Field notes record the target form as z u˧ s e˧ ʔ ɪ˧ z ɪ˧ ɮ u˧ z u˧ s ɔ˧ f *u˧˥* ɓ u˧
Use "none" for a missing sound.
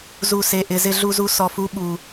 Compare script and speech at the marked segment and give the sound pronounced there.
u˧˥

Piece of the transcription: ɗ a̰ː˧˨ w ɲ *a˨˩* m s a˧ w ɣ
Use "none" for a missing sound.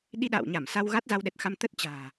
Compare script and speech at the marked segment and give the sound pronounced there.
a˧˩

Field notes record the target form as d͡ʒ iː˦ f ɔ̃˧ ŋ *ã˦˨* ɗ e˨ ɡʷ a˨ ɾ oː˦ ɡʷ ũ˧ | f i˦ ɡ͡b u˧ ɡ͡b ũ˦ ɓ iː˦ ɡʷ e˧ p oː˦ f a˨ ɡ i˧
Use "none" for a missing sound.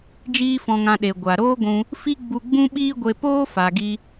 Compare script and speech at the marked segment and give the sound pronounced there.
ã˧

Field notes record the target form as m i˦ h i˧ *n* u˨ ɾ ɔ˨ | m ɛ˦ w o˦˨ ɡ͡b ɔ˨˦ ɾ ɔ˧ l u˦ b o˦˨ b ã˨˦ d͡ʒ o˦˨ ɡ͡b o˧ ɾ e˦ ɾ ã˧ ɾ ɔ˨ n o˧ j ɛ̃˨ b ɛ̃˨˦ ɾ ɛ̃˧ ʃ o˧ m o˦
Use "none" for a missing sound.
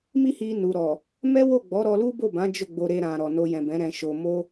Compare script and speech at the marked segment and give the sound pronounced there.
n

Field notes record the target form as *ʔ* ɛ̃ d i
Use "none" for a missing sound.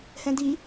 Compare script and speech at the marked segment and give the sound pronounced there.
h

